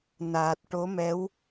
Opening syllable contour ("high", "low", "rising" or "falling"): low